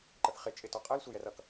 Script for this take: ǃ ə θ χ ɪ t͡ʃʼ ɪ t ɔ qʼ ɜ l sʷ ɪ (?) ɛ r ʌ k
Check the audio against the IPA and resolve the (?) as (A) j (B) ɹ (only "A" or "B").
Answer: A